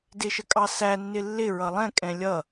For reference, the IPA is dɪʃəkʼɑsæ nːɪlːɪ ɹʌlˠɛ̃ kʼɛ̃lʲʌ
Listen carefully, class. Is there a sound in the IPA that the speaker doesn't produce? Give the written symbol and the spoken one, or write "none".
none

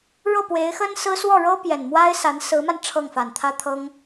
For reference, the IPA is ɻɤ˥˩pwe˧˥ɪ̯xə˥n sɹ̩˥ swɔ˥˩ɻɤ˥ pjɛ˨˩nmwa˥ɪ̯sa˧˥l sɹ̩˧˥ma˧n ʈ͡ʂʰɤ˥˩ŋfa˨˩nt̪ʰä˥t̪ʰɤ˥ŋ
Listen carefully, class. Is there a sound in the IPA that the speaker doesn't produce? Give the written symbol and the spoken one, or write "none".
l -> n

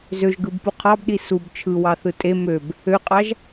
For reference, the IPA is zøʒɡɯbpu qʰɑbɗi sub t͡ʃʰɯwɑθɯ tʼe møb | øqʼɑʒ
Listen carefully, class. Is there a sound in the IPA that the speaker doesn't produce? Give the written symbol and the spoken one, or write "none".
none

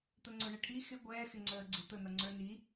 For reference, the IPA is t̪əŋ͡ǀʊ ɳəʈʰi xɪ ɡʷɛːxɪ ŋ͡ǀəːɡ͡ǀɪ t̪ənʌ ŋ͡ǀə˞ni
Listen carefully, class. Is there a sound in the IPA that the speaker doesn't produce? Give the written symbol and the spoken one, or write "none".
none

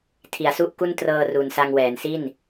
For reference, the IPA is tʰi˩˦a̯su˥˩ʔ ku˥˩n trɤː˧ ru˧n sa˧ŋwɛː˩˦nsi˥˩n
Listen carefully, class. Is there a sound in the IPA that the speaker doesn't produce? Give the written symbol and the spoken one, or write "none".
none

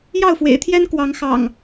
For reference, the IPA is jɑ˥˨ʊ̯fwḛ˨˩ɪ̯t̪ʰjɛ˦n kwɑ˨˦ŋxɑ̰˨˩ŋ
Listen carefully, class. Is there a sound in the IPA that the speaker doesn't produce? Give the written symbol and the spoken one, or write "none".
none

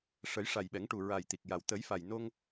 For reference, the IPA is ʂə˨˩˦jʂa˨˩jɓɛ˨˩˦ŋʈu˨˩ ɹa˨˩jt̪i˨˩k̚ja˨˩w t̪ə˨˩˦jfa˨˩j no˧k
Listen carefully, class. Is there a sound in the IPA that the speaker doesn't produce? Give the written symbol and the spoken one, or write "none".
k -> ŋ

